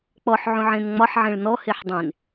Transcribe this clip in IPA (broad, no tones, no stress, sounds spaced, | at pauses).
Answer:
k͡p ɔ ħ ʕ ũ ʕ ẽ n ŋ͡m ɒ ħ ʕ ẽ ɭ n ɔ h e ħ dˤ ẽ n